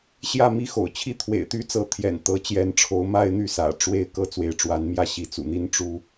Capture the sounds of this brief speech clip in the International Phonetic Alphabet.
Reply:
ɕ j ä˥˨ m i˦ x o̰˨˩ ʊ̯ t͡ɕʰ i˥˨ t̪ʰ w ḛ˨˩ ɪ̯ t̪ y˦ t͡s ɤ˨˦ t̪ʰ j ɛ̰˨˩ n t̪ ɤ˨˦ t͡ɕ j ɛ˨˦ n ʈ͡ʂʰ o˨˦ ʊ̯ m a˦ ɪ̯ n̪ y˥˨ s ä̰˨˩ ʈ͡ʂ w e˥˨ ɪ̯ k ɤ˥˨ t͡s w e˨˦ ɪ̯ ʈ͡ʂ w a˨˦ n m j ä˥˨ ɕ i˨˦ t͡s ṵ˨˩ n̪ i˦ n ʈ͡ʂ u˦

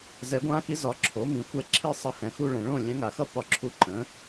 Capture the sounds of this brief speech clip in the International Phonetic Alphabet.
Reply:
z ɛ˩˥ ɡʷ ã˧˥ x i˧˥ z ɒ˩˥ ǁʰ o˩˥ m ĩ˩˧ xʷ ɛ˧˥ ǁʰ i˥˧ sˤ ʌ˧˥ h ɛ̃˩˧ x u˥˧ ɭ ɛ̃˩˧ ɭ õ˥˩ lʲ ɛ̃˧˥ ŋ a˩˧ x ʌ˥˧ p ɒ˥˩ ǁʰ u˧˥ ǃ ə̃˩˥

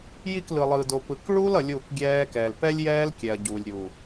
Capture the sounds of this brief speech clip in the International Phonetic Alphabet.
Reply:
j i˦˨ k l ɯ˨ lˠ ɯː˨ d o˨ p ɯ˨ k ɭ uː˦ l ʌ˨ lʲ uː˦˨ k ɡʲ ɛː˦ k ɛː˨ l p ɛ˦ lʲ j ɛː˦ l kʲ ɛ˨ ɐ̯ ɟ uː˨ lʲ ɾʲ uː˨

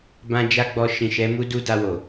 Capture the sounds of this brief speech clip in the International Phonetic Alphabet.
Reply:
b ã˦ d͡ʒ a˦ ɡ͡b ɔ˧ ʃ ĩ˨ ʃ ɛ˨˦ m u˦ d u˦ d a˧ w o˨

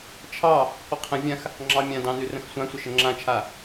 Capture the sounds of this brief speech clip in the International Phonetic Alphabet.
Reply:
t͡ʃʰ ɑ | qʷ ə qʰ ə̃ vʲ ã x | ŋ͡ǁ ɑ mʲ ã d ɑ̃ n ʉ r ə̃ x sʷ ã sʷ ə ʃ ə ŋ͡ǁ ã t͡ʃʰ a

